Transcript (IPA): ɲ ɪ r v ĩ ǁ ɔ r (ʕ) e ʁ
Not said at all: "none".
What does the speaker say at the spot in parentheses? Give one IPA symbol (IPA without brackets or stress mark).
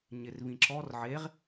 ʕ